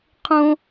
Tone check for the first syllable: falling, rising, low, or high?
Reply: high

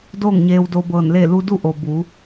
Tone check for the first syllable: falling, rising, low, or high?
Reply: falling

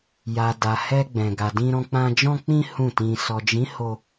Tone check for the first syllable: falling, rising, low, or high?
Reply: low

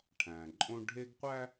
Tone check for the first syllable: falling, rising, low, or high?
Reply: low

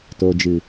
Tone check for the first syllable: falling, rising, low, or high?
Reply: low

